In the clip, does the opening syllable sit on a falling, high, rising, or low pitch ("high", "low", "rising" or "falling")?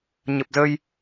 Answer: low